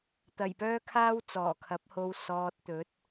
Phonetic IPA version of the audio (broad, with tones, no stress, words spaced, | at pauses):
t̪ɐ˨˩jpœː˥kʰaː˥w t͡sɔː˨˩kʰɐ˨˥p̚ho˧w sɔː˧t̚t̪ɵ˨˥t̚